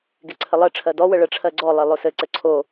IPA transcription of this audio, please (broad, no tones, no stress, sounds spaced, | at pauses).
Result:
ɡ e ǀʰ ə lˠ ɜ ʈ͡ʂʰ ɜ d ɔ w ə ɭ ə ʈ͡ʂʰ ɜ ɡ͡ǀ ɔ lˠ e lˠ o s ɘ ǀ ɘ ǀʰ o